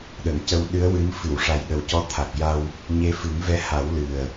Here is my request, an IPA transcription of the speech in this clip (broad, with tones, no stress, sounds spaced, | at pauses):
ɗ ə˨˩˨ ŋ c ə˧ w ɗ ɨ˧˥ ə̯ w ɨ˧˥ m f ɨ˨˩˨ w ʂ a˨˩ j ɗ ə˨˩ w c ɔ˧˥ t̪ʰ a˨˩ k̚ j a˧ w | ɲ e˧˥ f ɨ˨˩˦ ŋ v ɛ˧˥ h a˨˩˦ w l ɨ˨˩ ə̯